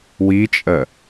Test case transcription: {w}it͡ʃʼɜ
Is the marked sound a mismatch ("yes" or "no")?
no